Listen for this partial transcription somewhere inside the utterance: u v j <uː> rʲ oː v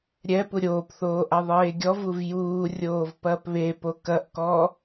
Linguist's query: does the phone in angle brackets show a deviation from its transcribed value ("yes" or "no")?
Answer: no